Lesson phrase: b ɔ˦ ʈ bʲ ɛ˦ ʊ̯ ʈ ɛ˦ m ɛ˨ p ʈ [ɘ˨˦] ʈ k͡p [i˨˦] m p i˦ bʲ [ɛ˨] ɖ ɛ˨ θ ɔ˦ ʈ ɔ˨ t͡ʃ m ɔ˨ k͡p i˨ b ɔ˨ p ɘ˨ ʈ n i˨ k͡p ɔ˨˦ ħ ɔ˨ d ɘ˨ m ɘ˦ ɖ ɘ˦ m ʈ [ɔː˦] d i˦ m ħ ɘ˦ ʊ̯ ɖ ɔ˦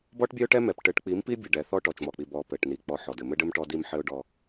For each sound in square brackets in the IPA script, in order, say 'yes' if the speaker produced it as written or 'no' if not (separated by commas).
yes, yes, no, no